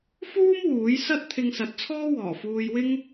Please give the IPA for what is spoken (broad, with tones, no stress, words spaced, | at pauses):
fuː˥m wuː˨˥j sɐ˥t̚t̪ʰɪ˧ŋsɐ˨˥t̚t͡sʰɔː˥ wɔː˨˩fuː˧jwɪ˥ŋ